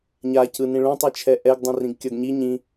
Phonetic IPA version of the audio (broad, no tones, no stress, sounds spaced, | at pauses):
ɲ a c ɯ n ĩ ɭ ũ tˤ i t͡ʃʰ ɛ ʔ ɛ ɡ dˤ ũ r ĩ ɡ kʲ ʌ ɡ ɲ i ɲ ĩ